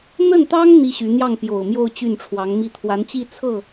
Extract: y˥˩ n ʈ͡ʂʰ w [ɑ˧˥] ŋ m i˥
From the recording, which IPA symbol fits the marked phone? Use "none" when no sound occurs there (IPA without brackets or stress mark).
ɑ˧˥